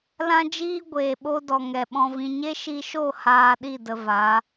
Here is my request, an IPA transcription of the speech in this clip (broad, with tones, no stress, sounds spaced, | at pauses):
l ã˦ d͡ʒ iː˦ ɡʷ eː˨ ɓ o˦ d ɔ˨ ŋ ɛ˨ ɓ ɔ̃˧ v ĩ˧ ɲ e˦ ʃ i˧ ʃ o˦˨ h aː˧ ɗ i˦˨ d ə˧ v a˨˦